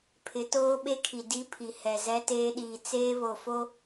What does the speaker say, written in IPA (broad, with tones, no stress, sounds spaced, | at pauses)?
pʰ ɪ˨˦ t oː˦ ɓ e˦ kʰ i˨ d i˦ pʰ i˨ h ɛ˨ z ɛ˦ t eː˦ ɗ iː˨ t͡s eː˦ β o˨ f o˦